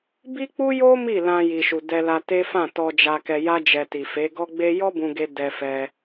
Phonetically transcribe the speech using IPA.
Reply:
b i˦ k͡p u˦ j o˦ m i˦˨ l ã˧ j i˨ ʃ u˨ d ɛ˧ l a˧ t e˦ f ã˦˨ t ɔ˧ d͡ʒ a˧ k ɛ˧ j a˦ d͡ʒ ɛ˧ t i˨ f e˨˦ ɡ ɔ˦ ɡ͡b e˦ j ɔ˦ b ũ˧ ɡ e˧ d ɛ˧ f ɛ˧

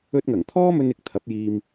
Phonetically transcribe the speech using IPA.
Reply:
ɵ˧ t̚ ŋ ɐ˨˩ ŋ t̪ʰ ɔː˥ m ɵ˥ n ɪ˧ k̚ t̪ʰ ɐ˨˥ p̚ j iː˨ m

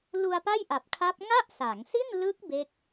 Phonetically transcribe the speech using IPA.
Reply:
l u˧ a̯ p a˥˩ j ʔ a˨˩ p̚ kʰ a˦˥ p̚ ŋ a˥˩ ʔ s a˩˦ ŋ s i˥˩ n l ɯ˦˥ k̚ b e˦˥ k̚

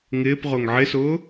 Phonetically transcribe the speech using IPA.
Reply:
ŋ ɪː p ʁ ʊ ŋ ʕ ɪ s ʊː

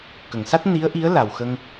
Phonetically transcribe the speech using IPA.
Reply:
k ə˨˩˨ ŋ s a˦˥ t̚ n i˧˥ ə̯ ʔ i˧˥ ə̯ l a˨˩ w x ə˧ ŋ

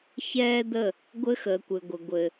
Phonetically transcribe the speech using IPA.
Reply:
ç ɛː˦ d̪ ə˦˨ | ɡʷ ɘ˦ x əː˨ kʷ ɘ˨ ɡʷ ə˨ ɡʷ ɘ˨

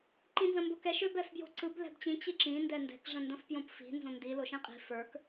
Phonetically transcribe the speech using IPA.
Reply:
ǃ ĩ n z ə̃ m b ʊ k ɛ ʃ ʏ b ɛ f b j o̤ ǀ ɯ b l ɛ̤ b t͡ɕ ĩ t͡ɕ i ǁ ĩ n d ɛ n d ɛ̤ k ʐ ə̃ n d ə̃ f p j õ p f i̤ n z õ n d i l o ʃ ĩ qʼ i̤ f ə˞ k

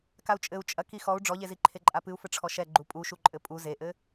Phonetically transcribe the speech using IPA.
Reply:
k a u̯ t͡ʃʼ ɘ u̯ t͡ʃʼ ɐ k i x ɔ u̯ ɖ͡ʐ ɔ ʎ e z i ǃʰ e ǃʼ a p ɨ u̯ f ɘ ʈ͡ʂʰ ɔ ʃ ɛ ɡ͡ǃ u pʼ u ʃ u ǃʼ ɘ pʼ u z e ʔ ɘ

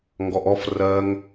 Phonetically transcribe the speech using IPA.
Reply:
ŋ ɡ ɔ ʔ ɔ f r ɜ ŋ

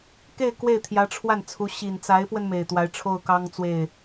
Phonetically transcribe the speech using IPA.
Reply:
k e˥˧ ɪ̯ k w e˥˩ ɪ̯ t̪ʰ j ä˧˥ ʈ͡ʂʰ w a˥˩ n t͡sʰ u˧˥ ɕ i˨˩ n t͡s a˧˥ ɪ̯ p w ə˧ n m e˨˩ ɪ̯ t̪ w a˧˥ ɪ̯ ʈ͡ʂʰ o˥˩ ʊ̯ k ɑ˥ ŋ t͡s w e˥˩ ɪ̯

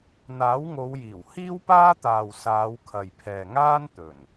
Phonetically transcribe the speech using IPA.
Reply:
n̪ aː˨˥ w ŋ o˨˧ w j iː˨˩ w h iː˥ w p aː˥ t̪ aː˨ w s aː˨˧ w kʰ ɐ˨ j pʰ ɛː˨ ŋ aː˥ n t̪ ɵ˨˩ n

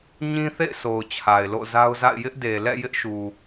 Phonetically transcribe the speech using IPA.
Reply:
ɲ ĩ˦ θ ḛ˦˨ ɪ̯ s o˨ ʊ̯ t͡ɕʰ a˨ ɪ̯ l o̰˦˨ z a˦ ʊ̯ z a̰˦˨ ɪ̯ j ɪ˦ ʔ d e˨ l ɛ̰˦˨ j ɪ˦ ʔ ʃ u˨

